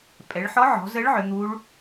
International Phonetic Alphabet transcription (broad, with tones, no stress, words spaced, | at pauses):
pʼɛ˩˧ɭħɔ˧˥ʕɔ̤˩˧zə˧˥ɭ ʕʏ˩˧n̪u˧˥ɭ